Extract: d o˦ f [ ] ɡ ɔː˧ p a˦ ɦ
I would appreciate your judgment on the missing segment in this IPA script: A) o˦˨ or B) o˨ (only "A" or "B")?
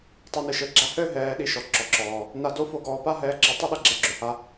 A